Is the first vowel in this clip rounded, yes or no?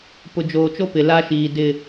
yes